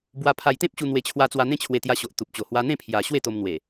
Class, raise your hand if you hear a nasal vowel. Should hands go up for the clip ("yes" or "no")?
yes